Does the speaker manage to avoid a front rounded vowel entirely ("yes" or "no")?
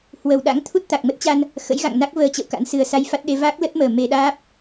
yes